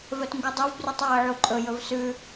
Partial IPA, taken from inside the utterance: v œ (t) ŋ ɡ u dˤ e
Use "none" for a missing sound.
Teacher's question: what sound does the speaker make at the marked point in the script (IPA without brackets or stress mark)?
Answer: t